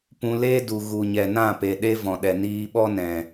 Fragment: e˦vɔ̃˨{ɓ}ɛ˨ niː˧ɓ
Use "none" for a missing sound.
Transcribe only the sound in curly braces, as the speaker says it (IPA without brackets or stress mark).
ɗ